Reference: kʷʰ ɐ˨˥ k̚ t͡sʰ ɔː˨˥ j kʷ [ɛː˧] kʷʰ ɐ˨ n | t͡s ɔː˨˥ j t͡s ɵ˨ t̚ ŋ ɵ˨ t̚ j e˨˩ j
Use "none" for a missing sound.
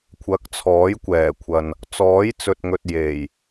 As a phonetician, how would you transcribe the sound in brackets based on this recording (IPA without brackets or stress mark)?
ɛː˨˩